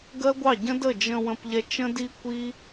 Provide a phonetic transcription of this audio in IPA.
ɡ ɜ˦ ɡʷ ɑ˦˨ ɟ ə̃˦ d ə˦˨ d͡ʒ ə̃˧ w ə̃˧ p ʎ ɛ˧ t͡ʃ ə̃˦ d i˦ kʷ i˦

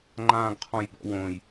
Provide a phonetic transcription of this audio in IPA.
ŋ͡ǃ ãː ɡ qʰ ɔ̃ j b ɔ̰ w õ j

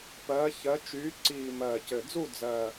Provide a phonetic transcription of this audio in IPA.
p ɜː˨˦ ç ɜ˨˦ t͡ʃ yː˨˦ ǀ iː˨˩ m ɜː˨˩ c ɘ˨˩ d͡z u˥˧ d͡z ɜː˨˩

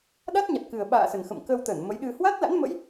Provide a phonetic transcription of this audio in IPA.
ɗ a˦˥ t̚ ɲ a˨˩ t̚ k ɨ˨˩ ə̯ ɓ a̰ː˧˨ s ə˨˩ n x ə̰˧˨ m k ə˧ w t̪ ə˧˩ n m ə˨˦ j ɗ ɨ˧ h w a˦˥ t̚ l a̰˧˥ n m ə̰˧˥ j

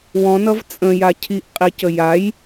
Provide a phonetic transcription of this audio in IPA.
w ɔ̃ n ʌ v t͡sʼ ə̃ j a cʰ i ʔ qʼ i c ə j a j

